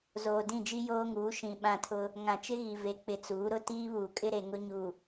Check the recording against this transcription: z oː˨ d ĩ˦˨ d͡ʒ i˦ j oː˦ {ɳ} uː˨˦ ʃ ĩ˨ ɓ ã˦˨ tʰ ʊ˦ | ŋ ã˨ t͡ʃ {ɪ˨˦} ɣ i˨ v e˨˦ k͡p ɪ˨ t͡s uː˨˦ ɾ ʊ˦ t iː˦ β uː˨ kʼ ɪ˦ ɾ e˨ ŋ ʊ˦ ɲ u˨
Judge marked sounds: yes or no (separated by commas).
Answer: no, no